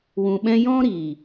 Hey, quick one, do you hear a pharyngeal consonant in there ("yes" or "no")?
no